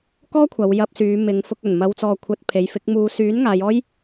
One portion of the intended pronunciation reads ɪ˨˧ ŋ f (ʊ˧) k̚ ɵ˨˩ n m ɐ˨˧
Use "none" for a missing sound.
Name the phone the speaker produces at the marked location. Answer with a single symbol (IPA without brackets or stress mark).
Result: ʊ˧